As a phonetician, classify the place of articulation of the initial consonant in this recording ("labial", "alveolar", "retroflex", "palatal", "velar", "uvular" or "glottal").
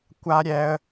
velar